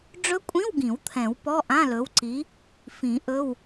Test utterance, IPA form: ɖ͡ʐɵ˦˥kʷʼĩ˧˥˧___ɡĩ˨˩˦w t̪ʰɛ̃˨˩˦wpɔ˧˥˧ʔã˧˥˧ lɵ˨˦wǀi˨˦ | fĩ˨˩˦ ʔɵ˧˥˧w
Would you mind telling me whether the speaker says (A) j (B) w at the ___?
B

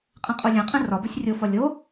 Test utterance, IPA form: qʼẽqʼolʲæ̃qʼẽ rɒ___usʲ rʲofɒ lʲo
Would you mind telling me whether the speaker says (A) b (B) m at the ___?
A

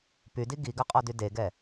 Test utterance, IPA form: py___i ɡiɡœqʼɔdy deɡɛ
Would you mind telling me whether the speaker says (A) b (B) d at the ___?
B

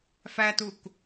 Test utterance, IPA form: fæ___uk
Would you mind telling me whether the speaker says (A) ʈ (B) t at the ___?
B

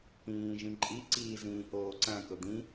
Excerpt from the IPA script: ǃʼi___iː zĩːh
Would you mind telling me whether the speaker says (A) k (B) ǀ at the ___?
B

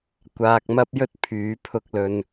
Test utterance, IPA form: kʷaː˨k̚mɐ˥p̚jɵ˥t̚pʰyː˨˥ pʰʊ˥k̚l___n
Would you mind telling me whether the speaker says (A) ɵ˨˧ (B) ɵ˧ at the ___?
B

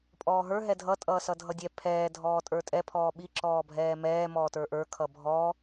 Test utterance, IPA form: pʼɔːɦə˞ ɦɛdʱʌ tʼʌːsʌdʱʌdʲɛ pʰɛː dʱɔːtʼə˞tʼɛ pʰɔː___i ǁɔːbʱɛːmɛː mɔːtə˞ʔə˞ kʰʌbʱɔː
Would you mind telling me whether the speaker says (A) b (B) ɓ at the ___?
B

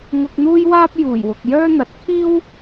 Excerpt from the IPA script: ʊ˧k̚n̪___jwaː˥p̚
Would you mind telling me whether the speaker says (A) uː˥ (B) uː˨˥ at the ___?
A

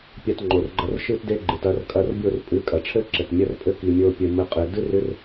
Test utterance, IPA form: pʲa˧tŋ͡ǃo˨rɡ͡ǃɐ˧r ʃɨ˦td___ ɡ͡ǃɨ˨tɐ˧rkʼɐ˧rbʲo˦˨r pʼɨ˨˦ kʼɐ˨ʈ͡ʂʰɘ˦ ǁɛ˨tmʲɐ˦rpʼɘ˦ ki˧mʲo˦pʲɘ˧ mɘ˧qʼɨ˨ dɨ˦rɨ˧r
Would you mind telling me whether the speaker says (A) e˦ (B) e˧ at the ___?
A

